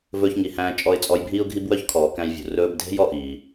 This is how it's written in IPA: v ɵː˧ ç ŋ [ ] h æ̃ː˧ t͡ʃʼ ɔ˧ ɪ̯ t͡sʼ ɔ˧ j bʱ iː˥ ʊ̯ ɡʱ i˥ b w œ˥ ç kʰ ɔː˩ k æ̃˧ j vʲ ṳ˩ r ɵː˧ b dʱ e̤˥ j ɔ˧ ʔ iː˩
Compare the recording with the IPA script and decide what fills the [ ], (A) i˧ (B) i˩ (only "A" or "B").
B